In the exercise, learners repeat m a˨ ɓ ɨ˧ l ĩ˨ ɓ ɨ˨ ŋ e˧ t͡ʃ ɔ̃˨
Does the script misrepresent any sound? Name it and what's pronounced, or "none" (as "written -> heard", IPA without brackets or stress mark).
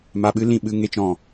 none